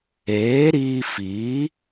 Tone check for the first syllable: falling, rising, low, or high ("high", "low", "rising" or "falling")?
rising